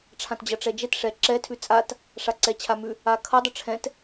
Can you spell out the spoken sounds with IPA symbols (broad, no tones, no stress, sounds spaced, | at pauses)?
ʈ͡ʂʰ ã t d͡ʑ ʌ ʈ͡ʂ ɛ d͡ʒ ɛ t ʂ ɛ ǁ ɛ tʰ ʉ t͡sʼ a t | ʂ a ǀ ɛ t͡ɕʰ a m ʉ | a kʰ ʌ dˤ ə ʈ͡ʂʰ ɛ̃ t